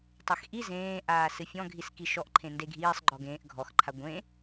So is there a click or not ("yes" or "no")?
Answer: yes